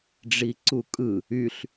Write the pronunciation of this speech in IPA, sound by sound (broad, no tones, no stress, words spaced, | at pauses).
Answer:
ɖ͡ʐiǀukʼɯ | yɬ